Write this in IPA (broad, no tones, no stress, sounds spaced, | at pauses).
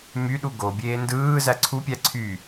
m y ɗ u ɡ o bʲ eː n d ɯː z æ ǀʰ u pʲ æ ǀʰ y